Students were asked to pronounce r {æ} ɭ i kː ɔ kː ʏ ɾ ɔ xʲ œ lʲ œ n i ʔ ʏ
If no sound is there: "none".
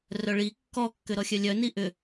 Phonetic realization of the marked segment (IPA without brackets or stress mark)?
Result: œ